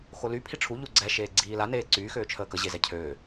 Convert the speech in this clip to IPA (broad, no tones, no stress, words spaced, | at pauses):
xoly pʰiʈ͡ʂʰu ʎuɡ͡ǀɛ ʃeːɡ͡ǀiːla neːǀyː xøːt͡ʃʰəːkə ʑezɛcʰøː